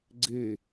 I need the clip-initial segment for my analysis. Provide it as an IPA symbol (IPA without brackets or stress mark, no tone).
ɡ͡ǀ